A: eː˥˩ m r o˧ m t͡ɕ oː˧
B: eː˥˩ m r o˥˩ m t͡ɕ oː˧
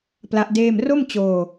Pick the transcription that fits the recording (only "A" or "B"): B